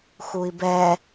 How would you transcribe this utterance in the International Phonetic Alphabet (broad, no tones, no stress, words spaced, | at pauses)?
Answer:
xui̯bɛ